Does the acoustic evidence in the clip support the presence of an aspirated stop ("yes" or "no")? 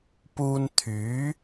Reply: yes